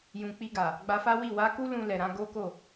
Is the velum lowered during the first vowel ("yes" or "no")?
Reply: yes